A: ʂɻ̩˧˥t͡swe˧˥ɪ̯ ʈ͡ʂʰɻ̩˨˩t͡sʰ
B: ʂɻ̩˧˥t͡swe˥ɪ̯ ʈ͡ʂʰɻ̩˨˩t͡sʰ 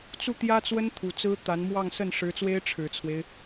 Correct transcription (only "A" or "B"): B